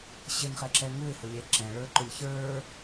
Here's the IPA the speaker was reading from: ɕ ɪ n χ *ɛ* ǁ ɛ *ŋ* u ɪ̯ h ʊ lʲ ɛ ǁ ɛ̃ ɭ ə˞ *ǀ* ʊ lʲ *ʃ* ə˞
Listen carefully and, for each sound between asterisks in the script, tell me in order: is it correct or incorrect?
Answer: correct, correct, incorrect, incorrect

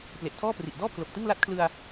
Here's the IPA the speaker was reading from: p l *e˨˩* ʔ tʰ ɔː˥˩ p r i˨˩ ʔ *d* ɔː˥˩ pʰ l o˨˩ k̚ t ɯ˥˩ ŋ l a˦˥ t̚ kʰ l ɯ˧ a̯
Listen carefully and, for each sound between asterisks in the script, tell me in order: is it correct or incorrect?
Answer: correct, correct

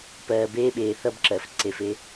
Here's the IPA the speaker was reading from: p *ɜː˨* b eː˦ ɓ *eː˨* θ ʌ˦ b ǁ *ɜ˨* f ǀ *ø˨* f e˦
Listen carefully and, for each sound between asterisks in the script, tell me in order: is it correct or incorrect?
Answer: correct, correct, correct, incorrect

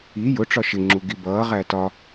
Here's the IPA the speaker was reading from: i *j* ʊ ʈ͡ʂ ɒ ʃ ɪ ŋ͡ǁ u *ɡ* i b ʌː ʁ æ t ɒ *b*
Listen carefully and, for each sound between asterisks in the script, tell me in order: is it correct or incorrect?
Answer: correct, correct, incorrect

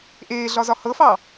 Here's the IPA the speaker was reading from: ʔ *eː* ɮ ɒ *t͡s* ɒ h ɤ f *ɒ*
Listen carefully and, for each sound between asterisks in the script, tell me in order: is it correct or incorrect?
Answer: correct, incorrect, incorrect

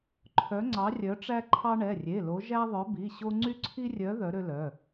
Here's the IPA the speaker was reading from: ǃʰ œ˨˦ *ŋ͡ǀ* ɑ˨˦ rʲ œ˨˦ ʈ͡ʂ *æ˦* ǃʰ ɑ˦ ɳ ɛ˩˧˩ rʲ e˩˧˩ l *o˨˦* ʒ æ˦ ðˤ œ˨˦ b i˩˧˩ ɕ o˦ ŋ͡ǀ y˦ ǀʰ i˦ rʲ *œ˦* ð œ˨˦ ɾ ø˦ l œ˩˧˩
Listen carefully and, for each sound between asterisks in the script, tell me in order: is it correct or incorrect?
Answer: correct, correct, correct, incorrect

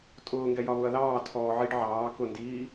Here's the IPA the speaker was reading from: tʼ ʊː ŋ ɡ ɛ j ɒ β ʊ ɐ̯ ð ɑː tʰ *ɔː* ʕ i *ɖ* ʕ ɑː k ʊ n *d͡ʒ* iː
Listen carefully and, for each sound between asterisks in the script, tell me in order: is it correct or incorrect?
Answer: correct, correct, incorrect

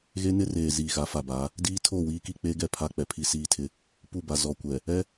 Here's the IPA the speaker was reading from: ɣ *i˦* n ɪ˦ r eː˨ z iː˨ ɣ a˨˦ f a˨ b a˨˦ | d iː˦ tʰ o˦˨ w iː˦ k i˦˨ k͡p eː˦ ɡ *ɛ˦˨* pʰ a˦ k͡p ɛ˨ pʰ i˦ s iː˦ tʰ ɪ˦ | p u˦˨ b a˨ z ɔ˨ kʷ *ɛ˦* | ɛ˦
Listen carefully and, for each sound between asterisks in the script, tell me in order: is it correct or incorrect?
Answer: incorrect, correct, incorrect

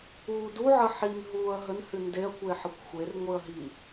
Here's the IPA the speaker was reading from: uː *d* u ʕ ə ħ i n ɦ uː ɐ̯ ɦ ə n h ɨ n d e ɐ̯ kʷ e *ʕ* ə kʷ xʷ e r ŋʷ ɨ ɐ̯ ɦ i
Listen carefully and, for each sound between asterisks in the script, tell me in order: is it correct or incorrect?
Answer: correct, incorrect

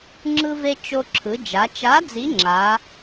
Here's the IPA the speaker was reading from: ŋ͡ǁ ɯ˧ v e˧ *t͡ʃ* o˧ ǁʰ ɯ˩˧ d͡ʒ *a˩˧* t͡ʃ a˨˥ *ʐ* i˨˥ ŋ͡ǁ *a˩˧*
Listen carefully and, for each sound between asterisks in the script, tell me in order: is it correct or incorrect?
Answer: correct, correct, incorrect, correct

